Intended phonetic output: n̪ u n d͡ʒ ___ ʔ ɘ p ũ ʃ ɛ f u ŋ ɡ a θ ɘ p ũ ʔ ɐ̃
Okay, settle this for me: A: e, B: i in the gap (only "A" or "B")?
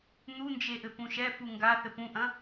A